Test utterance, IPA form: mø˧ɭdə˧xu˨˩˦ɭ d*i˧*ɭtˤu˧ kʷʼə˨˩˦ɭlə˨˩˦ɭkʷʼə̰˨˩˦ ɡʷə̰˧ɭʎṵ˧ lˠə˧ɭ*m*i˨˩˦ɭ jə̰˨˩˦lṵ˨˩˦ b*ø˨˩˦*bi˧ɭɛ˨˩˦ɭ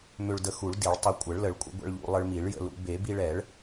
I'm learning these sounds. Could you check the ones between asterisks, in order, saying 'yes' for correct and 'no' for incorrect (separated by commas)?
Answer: no, yes, no